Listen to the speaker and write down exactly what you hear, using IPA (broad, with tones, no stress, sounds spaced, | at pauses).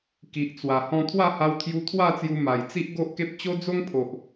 k i˨ ʔ t͡s w a˨˩ h ɔ̃˧ t̪ʰ w a˥˧ h a˧ w t̪ʰ j u˧ t̪ʰ w a˥˧ t͡s j u˧ m a˨˩ j t͡s i˦ ʔ ɡ o˦ ʔ k e˦ p̚ t͡ɕ o˦ d͡z o˦ ŋ pʰ o˨ ʔ